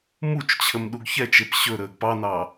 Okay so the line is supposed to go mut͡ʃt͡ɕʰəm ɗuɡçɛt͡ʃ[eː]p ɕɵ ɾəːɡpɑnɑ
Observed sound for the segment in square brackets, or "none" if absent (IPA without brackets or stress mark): e